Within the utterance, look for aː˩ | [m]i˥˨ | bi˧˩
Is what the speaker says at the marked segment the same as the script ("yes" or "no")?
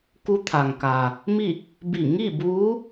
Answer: yes